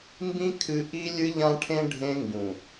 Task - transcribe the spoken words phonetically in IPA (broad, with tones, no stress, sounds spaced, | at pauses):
m b ĩ˦ kʰ ɨ˦ ʔ i˦ lʲ ɨ˦ ʎ ã˦ ʈʰ ẽ˦ ɖʱ ẽ˦ ŋ ɡ ũ˨